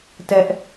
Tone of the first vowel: high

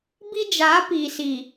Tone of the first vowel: high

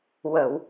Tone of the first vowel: low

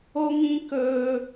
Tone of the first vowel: high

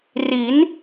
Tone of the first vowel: rising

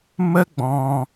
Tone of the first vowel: high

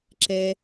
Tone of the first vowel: high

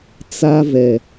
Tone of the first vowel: high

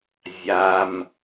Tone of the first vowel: low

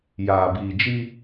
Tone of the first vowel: low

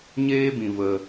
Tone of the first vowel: high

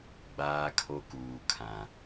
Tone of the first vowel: high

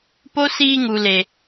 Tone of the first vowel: high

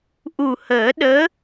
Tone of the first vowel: low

